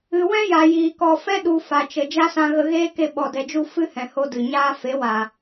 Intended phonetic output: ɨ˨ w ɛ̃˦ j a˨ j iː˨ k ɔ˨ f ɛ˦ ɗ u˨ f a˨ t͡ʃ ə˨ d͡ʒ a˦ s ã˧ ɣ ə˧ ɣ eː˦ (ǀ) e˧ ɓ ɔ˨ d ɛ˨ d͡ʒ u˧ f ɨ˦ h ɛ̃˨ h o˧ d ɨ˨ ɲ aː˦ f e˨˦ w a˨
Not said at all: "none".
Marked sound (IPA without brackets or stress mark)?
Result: k